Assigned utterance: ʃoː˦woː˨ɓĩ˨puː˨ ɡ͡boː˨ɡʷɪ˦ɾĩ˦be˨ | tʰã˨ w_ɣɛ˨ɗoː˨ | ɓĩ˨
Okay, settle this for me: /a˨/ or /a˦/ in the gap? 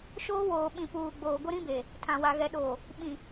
a˨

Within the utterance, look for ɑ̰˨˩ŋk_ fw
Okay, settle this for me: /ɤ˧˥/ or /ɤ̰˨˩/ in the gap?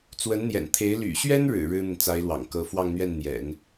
ɤ˧˥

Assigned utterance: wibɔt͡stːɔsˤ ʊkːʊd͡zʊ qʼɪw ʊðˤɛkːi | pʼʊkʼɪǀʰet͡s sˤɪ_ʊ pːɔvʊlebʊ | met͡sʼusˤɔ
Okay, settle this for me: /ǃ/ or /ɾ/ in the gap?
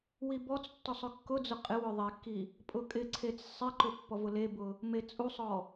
ǃ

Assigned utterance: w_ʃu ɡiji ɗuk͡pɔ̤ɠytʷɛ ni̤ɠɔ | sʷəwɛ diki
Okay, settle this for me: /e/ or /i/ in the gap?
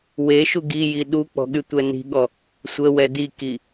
e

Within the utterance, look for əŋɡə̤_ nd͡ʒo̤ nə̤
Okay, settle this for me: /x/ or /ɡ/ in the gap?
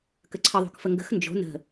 x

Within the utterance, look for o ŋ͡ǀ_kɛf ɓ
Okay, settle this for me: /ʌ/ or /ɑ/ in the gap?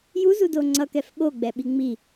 ʌ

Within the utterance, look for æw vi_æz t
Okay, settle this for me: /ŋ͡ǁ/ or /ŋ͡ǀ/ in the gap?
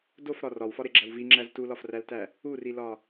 ŋ͡ǁ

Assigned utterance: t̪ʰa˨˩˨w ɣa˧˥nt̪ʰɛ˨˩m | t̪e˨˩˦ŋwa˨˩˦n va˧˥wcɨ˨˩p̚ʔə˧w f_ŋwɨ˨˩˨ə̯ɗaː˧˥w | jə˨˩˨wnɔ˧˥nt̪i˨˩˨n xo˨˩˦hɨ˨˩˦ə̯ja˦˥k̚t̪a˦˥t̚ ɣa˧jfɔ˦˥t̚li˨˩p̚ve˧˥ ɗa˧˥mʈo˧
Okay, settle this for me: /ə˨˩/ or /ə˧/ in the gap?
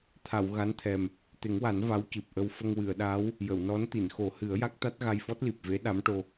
ə˧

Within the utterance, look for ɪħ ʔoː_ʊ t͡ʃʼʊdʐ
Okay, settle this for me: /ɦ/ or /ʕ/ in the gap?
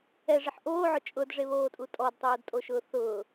ʕ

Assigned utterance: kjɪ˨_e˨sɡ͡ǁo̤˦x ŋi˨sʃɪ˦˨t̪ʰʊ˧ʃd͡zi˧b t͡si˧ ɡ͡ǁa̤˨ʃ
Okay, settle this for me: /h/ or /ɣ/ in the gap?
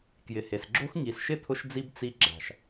h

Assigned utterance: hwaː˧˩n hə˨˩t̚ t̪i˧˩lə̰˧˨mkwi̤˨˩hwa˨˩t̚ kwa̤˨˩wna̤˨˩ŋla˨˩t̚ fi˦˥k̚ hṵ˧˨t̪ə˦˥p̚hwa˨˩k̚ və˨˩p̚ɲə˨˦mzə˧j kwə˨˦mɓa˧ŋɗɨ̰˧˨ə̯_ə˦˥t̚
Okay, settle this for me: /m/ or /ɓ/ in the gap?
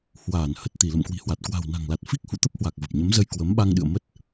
m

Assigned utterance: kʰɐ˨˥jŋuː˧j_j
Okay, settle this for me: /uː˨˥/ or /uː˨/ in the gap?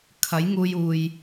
uː˨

